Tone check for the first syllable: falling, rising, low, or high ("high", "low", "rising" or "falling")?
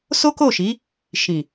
high